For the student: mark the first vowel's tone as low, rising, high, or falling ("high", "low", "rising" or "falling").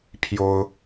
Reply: high